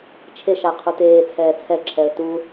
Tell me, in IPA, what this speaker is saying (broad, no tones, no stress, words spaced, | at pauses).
t͡ʃʰeʃa qʰuteːt͡sʰɛː t͡sʰɛǁʰɛə̯ tu